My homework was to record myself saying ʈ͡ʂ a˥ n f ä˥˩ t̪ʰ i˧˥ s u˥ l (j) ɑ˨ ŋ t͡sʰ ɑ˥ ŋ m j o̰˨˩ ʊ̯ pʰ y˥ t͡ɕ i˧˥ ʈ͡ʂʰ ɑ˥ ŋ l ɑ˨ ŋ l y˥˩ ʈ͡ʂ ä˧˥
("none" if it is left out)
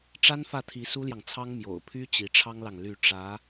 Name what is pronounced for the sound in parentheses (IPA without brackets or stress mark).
j